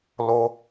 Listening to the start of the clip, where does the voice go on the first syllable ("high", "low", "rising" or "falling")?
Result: high